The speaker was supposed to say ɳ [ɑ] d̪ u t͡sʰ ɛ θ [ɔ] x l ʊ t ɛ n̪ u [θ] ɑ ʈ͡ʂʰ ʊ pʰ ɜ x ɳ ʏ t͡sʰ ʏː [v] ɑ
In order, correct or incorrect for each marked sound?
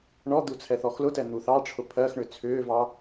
incorrect, correct, correct, correct

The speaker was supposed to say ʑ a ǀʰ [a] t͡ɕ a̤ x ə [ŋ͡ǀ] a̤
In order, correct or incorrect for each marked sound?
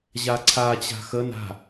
correct, incorrect

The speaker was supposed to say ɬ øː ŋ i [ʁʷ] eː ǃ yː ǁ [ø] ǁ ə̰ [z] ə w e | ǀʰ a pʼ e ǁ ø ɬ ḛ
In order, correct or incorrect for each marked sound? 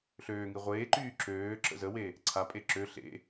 correct, incorrect, correct

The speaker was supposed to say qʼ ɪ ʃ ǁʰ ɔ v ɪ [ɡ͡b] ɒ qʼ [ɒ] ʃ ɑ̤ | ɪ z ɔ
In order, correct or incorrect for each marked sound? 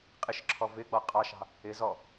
correct, incorrect

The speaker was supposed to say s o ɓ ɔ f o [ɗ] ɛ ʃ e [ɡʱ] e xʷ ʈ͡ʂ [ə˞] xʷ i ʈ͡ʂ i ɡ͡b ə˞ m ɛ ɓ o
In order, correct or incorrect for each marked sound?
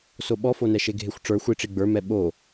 incorrect, correct, correct

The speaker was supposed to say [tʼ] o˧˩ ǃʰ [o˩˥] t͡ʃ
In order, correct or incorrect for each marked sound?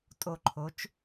correct, correct

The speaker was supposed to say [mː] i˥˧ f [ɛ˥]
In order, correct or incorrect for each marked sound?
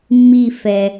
correct, incorrect

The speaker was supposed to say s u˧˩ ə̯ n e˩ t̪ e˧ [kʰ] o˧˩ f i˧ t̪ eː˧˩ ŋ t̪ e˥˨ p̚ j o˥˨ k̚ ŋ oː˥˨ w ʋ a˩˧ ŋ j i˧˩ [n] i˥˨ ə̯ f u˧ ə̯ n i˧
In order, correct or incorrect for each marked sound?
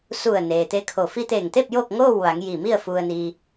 correct, incorrect

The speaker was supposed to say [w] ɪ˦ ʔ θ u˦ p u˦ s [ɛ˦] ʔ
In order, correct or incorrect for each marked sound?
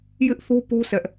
incorrect, correct

